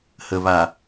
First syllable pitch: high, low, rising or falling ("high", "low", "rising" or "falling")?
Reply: low